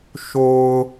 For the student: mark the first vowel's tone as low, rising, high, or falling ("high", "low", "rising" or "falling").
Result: low